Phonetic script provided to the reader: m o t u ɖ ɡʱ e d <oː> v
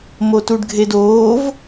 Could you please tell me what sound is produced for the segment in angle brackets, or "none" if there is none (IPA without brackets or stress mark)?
oː